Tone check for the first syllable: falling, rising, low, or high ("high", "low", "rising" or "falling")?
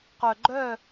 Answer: low